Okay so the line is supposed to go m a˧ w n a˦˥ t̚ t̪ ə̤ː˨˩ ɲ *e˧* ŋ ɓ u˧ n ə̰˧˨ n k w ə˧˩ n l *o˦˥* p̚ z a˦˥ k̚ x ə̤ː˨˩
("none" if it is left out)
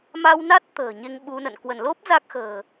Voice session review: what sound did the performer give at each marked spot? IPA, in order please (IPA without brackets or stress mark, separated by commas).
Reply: e˧, o˦˥